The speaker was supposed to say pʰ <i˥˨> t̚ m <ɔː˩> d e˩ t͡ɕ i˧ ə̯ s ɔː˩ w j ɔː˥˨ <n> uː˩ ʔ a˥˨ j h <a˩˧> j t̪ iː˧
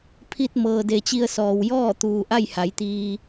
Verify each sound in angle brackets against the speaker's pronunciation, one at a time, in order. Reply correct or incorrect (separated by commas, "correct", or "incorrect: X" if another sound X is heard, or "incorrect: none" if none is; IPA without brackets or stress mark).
incorrect: i˧, incorrect: ɤː˩, incorrect: t̪, correct